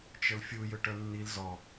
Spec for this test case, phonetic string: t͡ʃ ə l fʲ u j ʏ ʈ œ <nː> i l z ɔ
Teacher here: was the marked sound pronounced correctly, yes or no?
yes